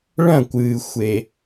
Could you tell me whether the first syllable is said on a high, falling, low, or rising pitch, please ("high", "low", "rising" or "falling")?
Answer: falling